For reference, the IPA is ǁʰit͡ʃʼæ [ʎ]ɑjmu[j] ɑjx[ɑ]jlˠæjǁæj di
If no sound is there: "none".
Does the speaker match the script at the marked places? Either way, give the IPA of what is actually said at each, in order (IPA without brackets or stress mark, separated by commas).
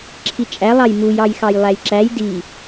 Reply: lˠ, j, ɑ